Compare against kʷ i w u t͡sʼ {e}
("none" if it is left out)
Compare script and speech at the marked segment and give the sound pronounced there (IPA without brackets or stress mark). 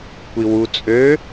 ø